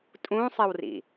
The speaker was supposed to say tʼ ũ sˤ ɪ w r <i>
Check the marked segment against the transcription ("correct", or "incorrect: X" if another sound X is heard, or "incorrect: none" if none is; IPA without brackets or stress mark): incorrect: ḭ